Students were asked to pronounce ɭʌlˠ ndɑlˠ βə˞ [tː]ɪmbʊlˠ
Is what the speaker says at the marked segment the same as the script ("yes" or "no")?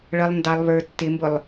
yes